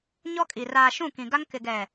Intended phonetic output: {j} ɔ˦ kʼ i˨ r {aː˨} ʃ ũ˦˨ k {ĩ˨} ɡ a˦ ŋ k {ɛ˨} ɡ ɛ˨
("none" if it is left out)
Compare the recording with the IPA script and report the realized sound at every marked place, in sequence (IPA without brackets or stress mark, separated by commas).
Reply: ɲ, aː˨, ĩ˨, ɪ˨